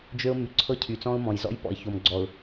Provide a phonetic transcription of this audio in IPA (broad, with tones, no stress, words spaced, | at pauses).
d͡ʒø˦ʊ̯ my˨ǀʰɤ˦ cʰy˨t͡sɔ̃˦ʊ̯mɔ̃˨jzɔ̰˦j pɔ̰˨ɪ̯ço˨mɡ͡ǀɔ˨ʊ̯